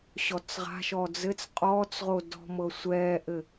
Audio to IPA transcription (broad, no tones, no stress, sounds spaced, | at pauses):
ɕ ɔ t͡s ʁ a̤ ʃ ɔ d͡z ɘ t͡s qʼ ɔː t͡s ʁ o d ɔ̤ m ɤ sʷ ɛː ʔ ɘ